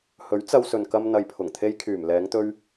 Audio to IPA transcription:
hɵ˨˥ɥt͡sɐ˧wsɵ˨nkɐ˧m n̪ɐ˨jpʰʊ˨˩ŋt̪ʰe˧jkʰyː˨˩m lɛː˨˧ŋt̪ɵ˧ɥ

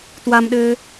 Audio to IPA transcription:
twamɗɘː

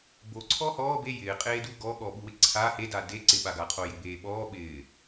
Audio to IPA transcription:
bo ǀʰɔːhɔː be jɪː qʼeːdu ɡɔɠɔ ɓuwɪǀʰa heda de ǀɪɓaɡa qʰojɪbeːɓɔː ɓɪː

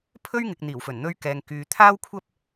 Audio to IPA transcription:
pʰɵ˥ɥŋɪ˨k̚ n̪iː˨˩wfɵ˨˩nn̪ɵ˧ɥ kɛː˨ŋkyː˨ t̪ʰaː˥wkʷʰɐ˥p̚

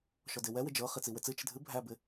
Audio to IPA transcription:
ʃɔdewɛ wɪd͡ʒɤ χit͡siwɪt͡sɨ t͡ʃɪdʱɨ bʱæbɪ

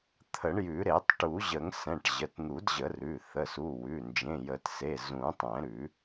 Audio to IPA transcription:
t̪ʰə˨˩˦ɳjʉ˨˩˦ ɾe˨˩˦tˤʈu˨˩˦ʑə˨˩˦ŋ sɛ̃˩˧˩ʈ ʑə˩˧˩tn̪u˨˩˦dʑə˨˩˦rʉ˩˧˩ θə˩˧˩su˩˧˩ wʉ˩˧˩ nd͡ʒẽ˩˧˩jə˨˩˦tse˩˧˩ zũ˨˩˦tˤɛ̃˨˩˦ɾʉ˨˩˦

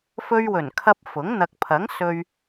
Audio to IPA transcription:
fɵ˧ɥwɵ˨˩nkʰɐ˧p̚ fʊ˨˥ŋ n̪ɐ˨k̚pʰɐ˨˥ŋsɵ˧ɥ

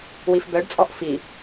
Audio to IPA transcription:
wifbœɖt͡sʼɔʔ fi

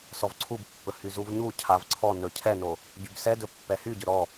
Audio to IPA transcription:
sɔvǀʰubpːɵ hyzuvɲucʰav ǀʰɔ nɵcʰɛno | ɟybsɛdɵ pːɛhyɟɵ ɾɔ

